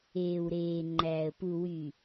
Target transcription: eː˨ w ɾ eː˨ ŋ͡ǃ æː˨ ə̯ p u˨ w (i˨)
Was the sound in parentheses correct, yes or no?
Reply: no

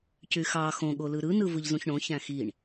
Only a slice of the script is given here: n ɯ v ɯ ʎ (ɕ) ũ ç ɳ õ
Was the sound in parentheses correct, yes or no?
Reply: no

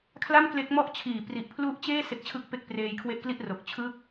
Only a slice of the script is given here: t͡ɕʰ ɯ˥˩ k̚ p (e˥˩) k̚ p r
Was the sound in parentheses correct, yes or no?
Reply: yes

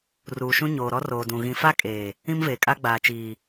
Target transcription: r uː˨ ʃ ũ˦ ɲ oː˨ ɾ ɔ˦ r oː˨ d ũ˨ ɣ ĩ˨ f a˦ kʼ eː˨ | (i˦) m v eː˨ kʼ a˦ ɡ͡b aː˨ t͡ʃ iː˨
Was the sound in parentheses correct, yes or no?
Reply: no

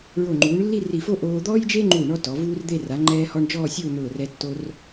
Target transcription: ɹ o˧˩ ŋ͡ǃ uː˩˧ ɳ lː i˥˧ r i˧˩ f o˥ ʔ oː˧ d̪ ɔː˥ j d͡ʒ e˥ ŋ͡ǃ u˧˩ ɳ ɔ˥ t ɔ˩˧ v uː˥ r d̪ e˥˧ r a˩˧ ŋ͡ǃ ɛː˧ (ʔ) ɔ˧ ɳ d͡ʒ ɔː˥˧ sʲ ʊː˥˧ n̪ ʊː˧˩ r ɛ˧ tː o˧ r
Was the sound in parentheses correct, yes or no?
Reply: no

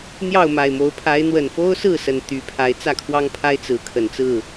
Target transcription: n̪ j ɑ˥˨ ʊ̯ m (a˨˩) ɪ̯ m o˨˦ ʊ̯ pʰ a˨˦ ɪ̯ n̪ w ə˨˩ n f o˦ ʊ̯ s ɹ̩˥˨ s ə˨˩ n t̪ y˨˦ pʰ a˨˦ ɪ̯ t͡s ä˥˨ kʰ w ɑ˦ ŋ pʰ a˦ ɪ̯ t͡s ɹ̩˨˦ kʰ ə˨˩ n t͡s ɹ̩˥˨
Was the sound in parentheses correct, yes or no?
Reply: yes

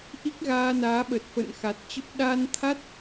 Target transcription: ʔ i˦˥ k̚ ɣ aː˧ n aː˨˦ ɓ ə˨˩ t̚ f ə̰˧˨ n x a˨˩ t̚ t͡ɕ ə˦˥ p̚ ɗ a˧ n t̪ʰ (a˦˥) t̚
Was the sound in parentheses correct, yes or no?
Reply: yes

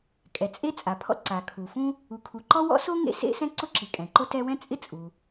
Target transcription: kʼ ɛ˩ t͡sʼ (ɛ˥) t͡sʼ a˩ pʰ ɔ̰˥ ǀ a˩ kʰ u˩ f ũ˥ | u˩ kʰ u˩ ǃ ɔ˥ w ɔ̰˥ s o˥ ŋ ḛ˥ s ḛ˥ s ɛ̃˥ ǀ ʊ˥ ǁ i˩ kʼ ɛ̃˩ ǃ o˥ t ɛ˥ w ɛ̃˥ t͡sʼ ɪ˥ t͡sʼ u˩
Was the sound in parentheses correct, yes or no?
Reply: no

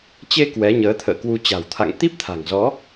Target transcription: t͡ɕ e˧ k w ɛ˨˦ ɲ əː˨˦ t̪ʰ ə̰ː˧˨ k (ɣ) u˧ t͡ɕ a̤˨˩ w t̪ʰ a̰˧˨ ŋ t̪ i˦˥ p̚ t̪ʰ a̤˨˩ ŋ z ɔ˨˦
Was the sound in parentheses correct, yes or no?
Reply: no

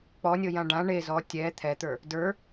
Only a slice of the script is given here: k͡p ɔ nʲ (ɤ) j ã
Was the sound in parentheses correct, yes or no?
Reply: yes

